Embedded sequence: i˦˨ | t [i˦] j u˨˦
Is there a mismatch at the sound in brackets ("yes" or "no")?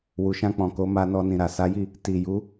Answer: yes